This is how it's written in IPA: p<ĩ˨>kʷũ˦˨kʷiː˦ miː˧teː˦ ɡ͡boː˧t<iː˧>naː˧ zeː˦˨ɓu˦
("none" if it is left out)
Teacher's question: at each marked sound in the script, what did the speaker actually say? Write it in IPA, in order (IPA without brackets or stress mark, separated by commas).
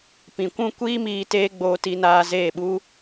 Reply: ĩ˨, i˧